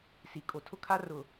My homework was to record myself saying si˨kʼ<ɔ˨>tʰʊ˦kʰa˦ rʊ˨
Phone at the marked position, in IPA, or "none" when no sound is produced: o˨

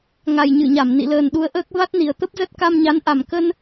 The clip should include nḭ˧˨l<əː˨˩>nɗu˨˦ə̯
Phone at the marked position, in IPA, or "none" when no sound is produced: əː˨˩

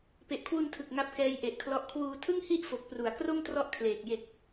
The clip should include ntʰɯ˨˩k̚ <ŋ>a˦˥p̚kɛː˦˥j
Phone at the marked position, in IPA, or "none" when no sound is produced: ŋ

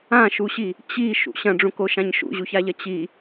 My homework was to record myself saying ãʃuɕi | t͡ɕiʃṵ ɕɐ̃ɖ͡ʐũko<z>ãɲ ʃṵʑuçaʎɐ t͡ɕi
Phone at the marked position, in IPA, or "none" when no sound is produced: ʃ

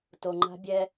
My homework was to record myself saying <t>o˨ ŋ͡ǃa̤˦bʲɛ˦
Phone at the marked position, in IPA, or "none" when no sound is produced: t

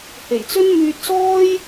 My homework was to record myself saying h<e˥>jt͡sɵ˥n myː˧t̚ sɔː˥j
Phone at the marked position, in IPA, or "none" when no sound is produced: e˨˩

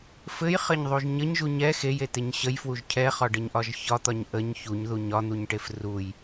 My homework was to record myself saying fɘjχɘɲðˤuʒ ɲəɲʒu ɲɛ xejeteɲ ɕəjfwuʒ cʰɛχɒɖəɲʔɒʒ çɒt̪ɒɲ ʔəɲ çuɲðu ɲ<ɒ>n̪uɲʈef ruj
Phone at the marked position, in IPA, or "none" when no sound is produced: ɒ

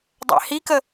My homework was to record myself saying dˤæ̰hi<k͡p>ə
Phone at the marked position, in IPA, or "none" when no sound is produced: k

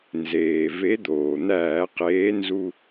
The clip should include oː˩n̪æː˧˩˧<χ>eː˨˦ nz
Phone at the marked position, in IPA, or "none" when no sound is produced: q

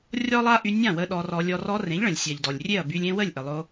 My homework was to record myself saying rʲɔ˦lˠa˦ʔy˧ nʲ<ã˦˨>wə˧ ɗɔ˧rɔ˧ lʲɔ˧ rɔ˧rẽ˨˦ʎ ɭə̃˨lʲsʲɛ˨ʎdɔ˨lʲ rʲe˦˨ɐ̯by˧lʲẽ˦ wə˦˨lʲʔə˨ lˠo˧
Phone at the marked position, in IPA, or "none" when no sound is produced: ã˦˨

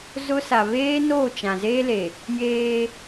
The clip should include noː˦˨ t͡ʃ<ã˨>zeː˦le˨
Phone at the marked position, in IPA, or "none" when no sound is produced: ã˨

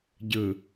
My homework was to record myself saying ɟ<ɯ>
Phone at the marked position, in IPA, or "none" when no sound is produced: ɯ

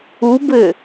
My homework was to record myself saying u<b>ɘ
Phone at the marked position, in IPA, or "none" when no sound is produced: b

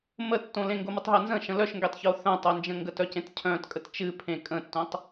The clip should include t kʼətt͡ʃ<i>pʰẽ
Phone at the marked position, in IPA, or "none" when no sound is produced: ɨ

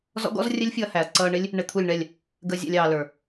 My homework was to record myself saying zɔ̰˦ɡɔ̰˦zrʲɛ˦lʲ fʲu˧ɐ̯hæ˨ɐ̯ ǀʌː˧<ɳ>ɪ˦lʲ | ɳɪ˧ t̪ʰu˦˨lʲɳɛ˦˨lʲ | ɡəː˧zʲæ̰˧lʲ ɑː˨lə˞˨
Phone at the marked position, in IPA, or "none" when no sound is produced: ɳ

